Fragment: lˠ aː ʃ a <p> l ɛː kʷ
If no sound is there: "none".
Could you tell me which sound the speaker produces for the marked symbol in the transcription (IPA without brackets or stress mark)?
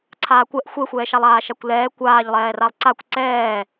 kʷ